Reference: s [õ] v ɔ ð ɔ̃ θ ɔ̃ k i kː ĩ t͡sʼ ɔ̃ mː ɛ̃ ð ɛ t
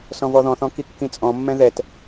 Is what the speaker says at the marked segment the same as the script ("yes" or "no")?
no